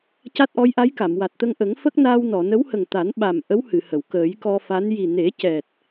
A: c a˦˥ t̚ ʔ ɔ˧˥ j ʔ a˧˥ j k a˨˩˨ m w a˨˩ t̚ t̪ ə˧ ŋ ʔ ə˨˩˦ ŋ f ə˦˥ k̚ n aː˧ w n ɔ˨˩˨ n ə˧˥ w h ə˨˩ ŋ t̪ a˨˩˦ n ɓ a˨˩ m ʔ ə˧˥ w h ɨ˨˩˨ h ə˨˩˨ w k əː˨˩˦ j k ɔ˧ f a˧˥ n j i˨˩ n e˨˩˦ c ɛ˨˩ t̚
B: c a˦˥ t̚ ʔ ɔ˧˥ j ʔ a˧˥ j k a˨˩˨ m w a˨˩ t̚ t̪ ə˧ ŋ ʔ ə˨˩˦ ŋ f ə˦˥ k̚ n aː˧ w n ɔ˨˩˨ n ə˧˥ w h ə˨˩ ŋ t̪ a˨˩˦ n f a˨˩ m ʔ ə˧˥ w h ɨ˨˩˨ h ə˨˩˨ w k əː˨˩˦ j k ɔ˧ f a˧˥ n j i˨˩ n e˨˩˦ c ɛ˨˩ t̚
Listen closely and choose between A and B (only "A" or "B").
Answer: A